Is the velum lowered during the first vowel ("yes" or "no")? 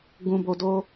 yes